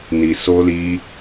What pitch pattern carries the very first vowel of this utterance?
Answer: low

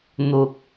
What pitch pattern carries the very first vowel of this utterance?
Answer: low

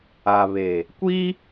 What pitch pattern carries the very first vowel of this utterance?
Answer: low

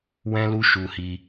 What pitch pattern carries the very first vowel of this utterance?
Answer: high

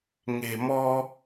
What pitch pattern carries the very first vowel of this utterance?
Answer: low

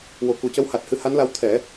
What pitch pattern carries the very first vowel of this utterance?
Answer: low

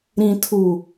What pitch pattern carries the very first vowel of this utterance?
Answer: low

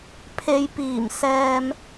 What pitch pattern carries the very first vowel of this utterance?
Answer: low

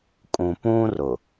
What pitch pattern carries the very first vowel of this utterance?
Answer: low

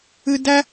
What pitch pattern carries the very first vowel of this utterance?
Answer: high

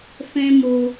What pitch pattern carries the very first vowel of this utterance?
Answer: high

